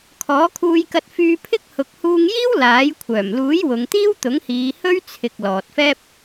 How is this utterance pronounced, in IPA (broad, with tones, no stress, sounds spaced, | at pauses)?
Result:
kʰ ɔː˨˥ kʰ uː˧ j k ɐ˧ t̚ f yː˧ pʰ ɪ˥ k̚ h ʊ˨ k̚ h uː˧ ŋ j iː˥ w l aː˨˥ j kʷʰ œː˨˩ m l uː˨˥ j w ʊ˨˧ ŋ t̪ iː˥ w t̪ ʊ˨˥ ŋ h iː˨˧ h ɵ˥ ɥ t͡sʰ ɪ˨ k̚ l ɔː˨ t̚ f ɛː˥ p̚